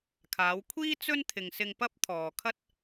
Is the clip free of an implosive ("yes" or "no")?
yes